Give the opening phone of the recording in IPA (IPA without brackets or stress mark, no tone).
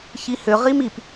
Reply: ç